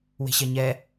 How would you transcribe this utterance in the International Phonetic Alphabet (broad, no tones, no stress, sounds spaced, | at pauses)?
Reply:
w e̤ ɕ ɛ ɲ ɛ